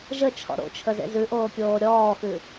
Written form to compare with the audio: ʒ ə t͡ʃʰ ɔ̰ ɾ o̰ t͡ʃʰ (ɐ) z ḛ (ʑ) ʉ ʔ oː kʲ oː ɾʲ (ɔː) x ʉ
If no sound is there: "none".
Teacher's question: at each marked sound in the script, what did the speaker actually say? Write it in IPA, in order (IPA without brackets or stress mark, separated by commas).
ə, z, ɔː